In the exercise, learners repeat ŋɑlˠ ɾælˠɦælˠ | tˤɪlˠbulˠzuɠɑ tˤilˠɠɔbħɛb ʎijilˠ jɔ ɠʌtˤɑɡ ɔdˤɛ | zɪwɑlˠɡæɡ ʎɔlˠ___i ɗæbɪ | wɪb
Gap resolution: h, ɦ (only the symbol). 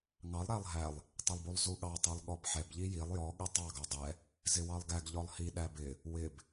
h